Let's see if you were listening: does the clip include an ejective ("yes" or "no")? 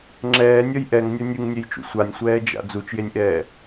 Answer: no